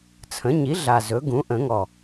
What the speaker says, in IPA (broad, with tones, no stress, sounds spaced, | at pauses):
t͡sʰ ə̃˩˥ ɲ i˩˥ ɮ a˨˩ z ɵ˩˥ ɡ ũ˩˥ ʔ ə̃˨˩˦ ŋ ɔ˨˩